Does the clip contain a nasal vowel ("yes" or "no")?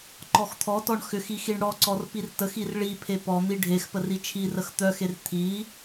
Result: no